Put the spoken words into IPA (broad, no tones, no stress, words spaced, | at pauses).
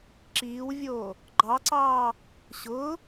ǁiːwvʲoː | ɡ͡ǃɑǀɑː | ɕʊː